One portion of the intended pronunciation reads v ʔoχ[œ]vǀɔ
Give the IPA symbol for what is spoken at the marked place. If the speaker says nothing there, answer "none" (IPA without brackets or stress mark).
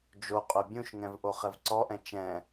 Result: ɛ